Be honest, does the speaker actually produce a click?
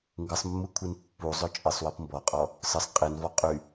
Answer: no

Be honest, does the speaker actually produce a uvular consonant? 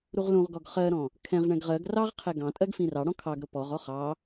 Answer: yes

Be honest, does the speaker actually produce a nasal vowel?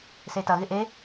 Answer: no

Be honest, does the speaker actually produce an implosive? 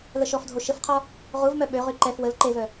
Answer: yes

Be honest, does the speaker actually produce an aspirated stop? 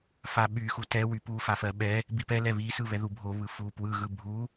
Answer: no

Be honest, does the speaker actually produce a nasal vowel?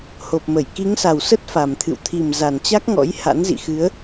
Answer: no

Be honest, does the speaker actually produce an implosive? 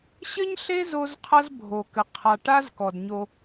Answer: no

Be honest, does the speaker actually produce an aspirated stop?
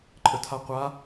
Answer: yes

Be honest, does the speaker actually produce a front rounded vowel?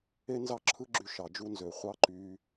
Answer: yes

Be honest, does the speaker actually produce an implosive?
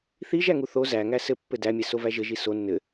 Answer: no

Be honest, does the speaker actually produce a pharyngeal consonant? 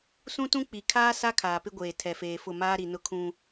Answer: no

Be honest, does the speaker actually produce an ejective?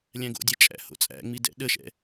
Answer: yes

